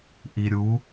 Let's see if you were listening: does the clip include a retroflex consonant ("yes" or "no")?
no